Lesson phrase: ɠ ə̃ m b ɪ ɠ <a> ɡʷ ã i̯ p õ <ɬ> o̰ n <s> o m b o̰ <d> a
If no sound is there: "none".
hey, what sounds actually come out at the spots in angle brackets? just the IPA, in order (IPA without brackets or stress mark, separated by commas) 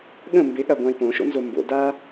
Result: a, ʃ, z, d